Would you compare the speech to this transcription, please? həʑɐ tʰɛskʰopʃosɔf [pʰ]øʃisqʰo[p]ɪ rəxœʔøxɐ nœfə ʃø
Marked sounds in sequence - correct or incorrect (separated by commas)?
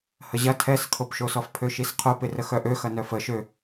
correct, correct